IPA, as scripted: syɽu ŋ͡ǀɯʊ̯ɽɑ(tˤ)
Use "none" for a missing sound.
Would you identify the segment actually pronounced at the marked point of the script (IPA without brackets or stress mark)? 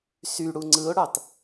t